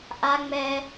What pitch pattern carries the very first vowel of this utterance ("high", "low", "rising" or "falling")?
high